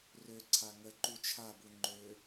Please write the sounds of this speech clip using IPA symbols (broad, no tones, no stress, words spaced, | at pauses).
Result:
røǀʰa ŋə ǃut͡ʃʰabu ŋ͡ǃø